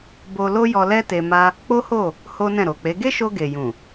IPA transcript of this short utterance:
bo˧lo˦ jɔ˧lɛ˦ te˧ma˦ | k͡po˦ho˦˨ | ho˦nɛ̃˦˨ ɾo˨k͡pe˨˦ ɡe˦ʃo˧ ɡe˨jũ˨

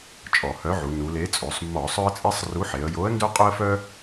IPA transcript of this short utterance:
t͡ʃʼɔ˧˩˧hœ˨˥ʕu˩˧ nu˩˧le˨˥ t͡sʼo˩˧sˤmːɔ˧˩˧ sˤœ˦ə̯t͡sʼe˦sˤru˨˥ħe˩˧ə̯ jo˨˥ə̯ndœ˦qʼo˦ə̯fœ˦

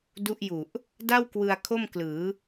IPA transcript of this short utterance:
du˦˥ʔju˨˩ʔ | da˥˩w kwɯ˧a̯ kʰo˥˩mklɯː˩˦

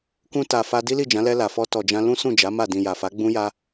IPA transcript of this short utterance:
kũ˧ta˨ fa˧ di˦li˦˨d͡ʒã˨˦ lɛ˧la˨fɔ˧ tɔ˨d͡ʒã˧ lũ˦sũ˦˨d͡ʒa˨˦ ma˦˨ dĩ˨ja˨fa˨˦ ɡ͡bũ˦ja˦

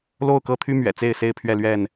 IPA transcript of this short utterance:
lo˥˨ʊ̯kɤ˦t̪ʰy˦ mɥɛ̰˨˩t͡se˥˨ɪ̯se˥˨ɪ̯ pʰɥɛ˥˨lɥɛ˥˨n

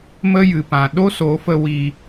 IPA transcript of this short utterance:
mə˦jɨ˨pã˨ ɗo˦so˨˦fə˧ wi˧

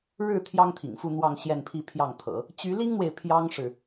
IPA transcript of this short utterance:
ɻɻ̩˥˩ t̪ʰjɑ˥ŋt̪ʰḭ˨˩ŋfu˥˧n̪wɑ˥˧ŋ ɕjɛ˥˧npʰi˥˧pʰjɑ˥˩ŋt̪ʰɤ̰˨˩˦ | t͡ɕy˧˥li˥ŋn̪we˨ɪ̯ pʰjɑ˥ŋʂɻ̩˨

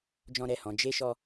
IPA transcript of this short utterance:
d͡ʒɔ̃˦ɾɛ˦˨hɔ̃˨˦ d͡ʒe˦ ʃɔ˦

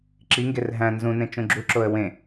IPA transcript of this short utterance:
ǁiŋɡer ɦæ̃ nzũ nẽt͡ʃũɡ͡ǁuǁoə̯ wẽ

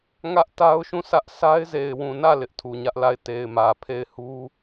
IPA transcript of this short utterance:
ŋä˦ʔ ta˦ʊ̯ʃũ˦˨sʰä˦ʔ sʰa˦ɪ̯ ze˨ɪ̯wũ˨nä˦˨ lɪ˦ʔtʰu˨ɲä˦ʔla˦˨ɪ̯ te˨ɪ̯mä˨ pʰe˦˨ɪ̯hu˦

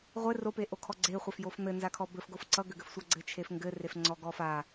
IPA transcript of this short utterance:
ʁʷɘ ropeʔokʰɔ ɡ͡ǀeχʷafjof n̪ɘnzakʰɔ bɘfɡof ǀʌɡʏɡɘfsʷa ɡ͡ǀɘt͡ʃʰefŋɡɘref ŋ͡ǀɔɡɔfa

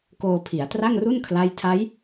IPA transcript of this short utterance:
koː˧pʰi˩˦a̯tra˥˩ŋru˥˩n kʰla˥˩j tʰa˦˥j

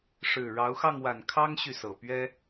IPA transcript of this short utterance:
ʂɻ̩˨˩ ɻɑ˨˦ʊ̯xɑ˧ŋwa˨˩n kʰɑ˦ŋɕy˨sɤ˨˩pɥɛ˦

